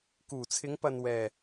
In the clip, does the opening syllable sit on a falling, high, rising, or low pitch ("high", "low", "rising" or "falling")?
low